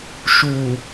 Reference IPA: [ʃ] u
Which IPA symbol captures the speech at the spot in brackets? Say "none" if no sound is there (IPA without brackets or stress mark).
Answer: ʃ